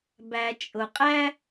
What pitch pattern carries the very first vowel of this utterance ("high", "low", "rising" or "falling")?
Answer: low